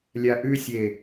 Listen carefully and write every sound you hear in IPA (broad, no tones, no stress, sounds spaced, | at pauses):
lʲ a ʔ ʉ sʲ e